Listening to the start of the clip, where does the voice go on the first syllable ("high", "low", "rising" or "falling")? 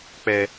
low